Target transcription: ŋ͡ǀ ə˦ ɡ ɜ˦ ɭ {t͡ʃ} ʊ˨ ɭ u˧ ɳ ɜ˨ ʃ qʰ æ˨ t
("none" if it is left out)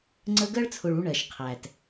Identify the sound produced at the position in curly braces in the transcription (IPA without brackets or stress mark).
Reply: t͡sʰ